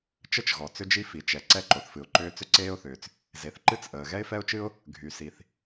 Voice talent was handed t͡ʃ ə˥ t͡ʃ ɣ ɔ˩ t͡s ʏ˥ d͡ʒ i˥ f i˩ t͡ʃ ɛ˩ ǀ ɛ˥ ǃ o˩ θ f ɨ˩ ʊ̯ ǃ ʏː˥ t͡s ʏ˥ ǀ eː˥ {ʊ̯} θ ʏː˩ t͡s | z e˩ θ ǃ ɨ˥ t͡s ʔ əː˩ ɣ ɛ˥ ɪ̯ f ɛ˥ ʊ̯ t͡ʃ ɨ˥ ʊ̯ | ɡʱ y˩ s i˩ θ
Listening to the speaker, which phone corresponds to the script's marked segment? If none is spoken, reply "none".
ʊ̯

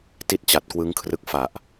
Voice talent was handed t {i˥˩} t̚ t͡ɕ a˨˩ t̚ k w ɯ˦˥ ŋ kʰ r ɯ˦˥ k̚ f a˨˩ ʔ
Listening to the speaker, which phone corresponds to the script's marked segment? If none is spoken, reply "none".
i˥˩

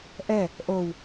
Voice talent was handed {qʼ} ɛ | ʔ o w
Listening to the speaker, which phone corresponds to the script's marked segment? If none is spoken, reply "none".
ʔ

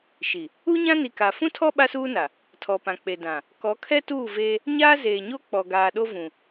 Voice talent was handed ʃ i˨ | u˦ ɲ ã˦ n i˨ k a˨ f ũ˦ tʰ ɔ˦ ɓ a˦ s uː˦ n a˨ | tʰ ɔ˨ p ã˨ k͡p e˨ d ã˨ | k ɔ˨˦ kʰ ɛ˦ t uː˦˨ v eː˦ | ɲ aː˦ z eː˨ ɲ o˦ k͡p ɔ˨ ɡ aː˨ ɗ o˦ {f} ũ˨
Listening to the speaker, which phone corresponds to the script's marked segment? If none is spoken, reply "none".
v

